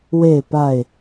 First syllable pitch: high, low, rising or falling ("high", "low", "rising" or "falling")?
falling